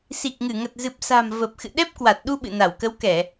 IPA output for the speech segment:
si˨˩k̚ŋɨ˧˩ ŋə˨˩t̚zɨ˨˩p̚sa̤˨˩m və˨˩p̚ xɨ̰˧˨ɗɛ˦˥p̚kwa˨˩t̚ɗu˧ ɓɨ̰˧˨na˧˩wkə˨˦wkɛ˧˩˨

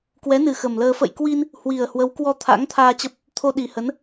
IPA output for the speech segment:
kwɛ˨˦nɨ˨˩ xə˨˩m ləː˧ fə̰˧˨jkwi˧n | hwi˨˩ə̯hwə˨˦wkwɔ˧ t̪ʰa̰˧˥ŋt̪ʰaː˧t͡ɕə˦˥p̚ | t̪ʰo˧ɗi˨˩hə˨˦n

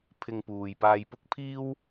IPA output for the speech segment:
pʰɪ˧ŋpuː˨j paː˧jpʊ˥k̚pʰiː˥w

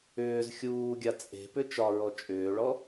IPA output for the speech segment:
ʏːz xʲuːɡʲa t͡sʼe̤pʏ t͡ʃɒɹɔ t͡ʃʼʏːɭɔ

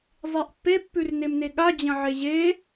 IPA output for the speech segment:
zˤeʔpːe pːʉrnemneɠa d͡ʑɐ̃ʕeʑe

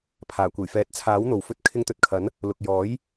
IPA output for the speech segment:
pʰaː˨˩kʷe˨˩jfɛː˨˥t̚ t͡sʰaː˨˥wn̪o˨w fɵ˧t̚ kʰɪ˧ŋt̪ɵ˨t̚kʰɐ˨˥n | lʊ˨k̚ jɔː˨˥j

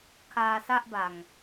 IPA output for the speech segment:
kʰaː˧sa˥˩ʔba˨˩ŋ

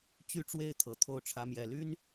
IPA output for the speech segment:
t͡ɕy˥˧ʈ͡ʂwe˥˩ɪ̯ t̪ʰɤ˨˩t̪ʰo˥˩ʊ̯ʈ͡ʂʰä˧˥mjɛ˨˩ ly˥n

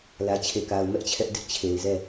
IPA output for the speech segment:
lä˨t͡ɕʰe˨ka˨ʊ̯ mɛ˦ʔt͡ɕʰɛ˦ʔ dɪ˦ʔt͡ɕʰe˨ɪ̯zɛ˦˨

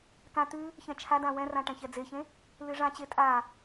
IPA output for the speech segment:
kã t̪ʉ | çɛ̃t͡ʃʰadã wɛ̃rã ʈɛ̃çɛd͡zeçẽ | lɨʐãt͡ɕe tʼa

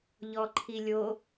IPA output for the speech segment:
ʎɔǃʰilʲo

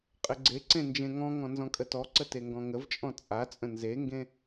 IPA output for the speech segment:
qʼɘɡ͡ǀeǀẽ nd͡ʒẽŋɔ̃ŋɔ̃ nzɔ̃kʼətɔǀə teŋɡɔ̃ŋəvt͡ʃʼɔ̃ t͡sʼat͡sʼə̃ nzeŋɡẽ

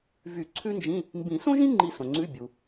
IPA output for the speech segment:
vy˨˩˦ ǀʰʉ˥nd͡ʒĩ˧˥˧ | mbĩ˨˩˦sõ˥ʒĩ˥ ŋ͡ǃi˦˨sõ˩ŋ͡ǀʉ˧˥˧ bʲu˩

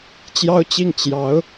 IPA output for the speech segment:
t͡ɕjɑ˥ʊ̯t͡ɕi˥˩ŋ t͡ɕjɑ˧˥ʊ̯

